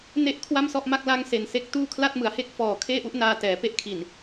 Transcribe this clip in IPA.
n e˥˩ ʔ kʰ w a˥˩ m s ɔ˥˩ ʔ m a˥˩ k̚ l a˦˥ ŋ s e˨˩ n s e˥˩ k̚ t uː˥˩ kʰ l a˥˩ t̚ m ɯ˩˦ a̯ h e˥˩ k̚ f ɔː˨˩ kʰ eː˥˩ ʔ u˦˥ ʔ n aː˧ t ɛː˩˦ p e˥˩ ʔ kʰ i˨˩ n

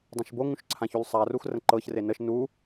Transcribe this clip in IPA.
dˤ ã ʃ b o ŋ ũ ʃ ǀʰ ã ç u l sˤ a r u x r ə̃ ǃ ɤ ç r e n ə ʃ n u

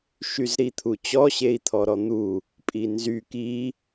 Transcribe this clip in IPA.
ʃ y z ɾ i t̪ʰ u t͡ɕ ɔ ɕ e i̯ t̪ʰ ɔ ɾ ɔ n̪ u | pʼ i n z y k i

